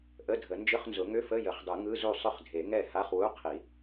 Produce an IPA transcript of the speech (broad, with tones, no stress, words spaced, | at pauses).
ʔə˧˥˧dʱə˨˩˦ nd͡ʒʏ˧˥˧χnzʊ˨˩˦ŋʏ˧˥˧fə˧˥˧ jə˨˩˦χdˤɯ˨˩˦ ŋɯ˧˥˧zu˥˩ sˤʏ˥˩χdʱe˨˩˦ ŋɛ˥˩ha˧˥˧χwu˧˥˧ qʰi˨˩˦